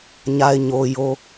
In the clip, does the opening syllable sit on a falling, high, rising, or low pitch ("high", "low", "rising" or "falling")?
low